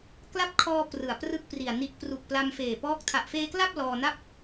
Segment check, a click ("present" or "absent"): absent